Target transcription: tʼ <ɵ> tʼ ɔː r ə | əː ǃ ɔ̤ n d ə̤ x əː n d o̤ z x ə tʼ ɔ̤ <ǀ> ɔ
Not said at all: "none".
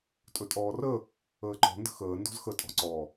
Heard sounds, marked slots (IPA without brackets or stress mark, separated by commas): ɵ, ǀ